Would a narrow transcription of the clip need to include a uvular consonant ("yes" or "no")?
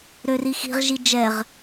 yes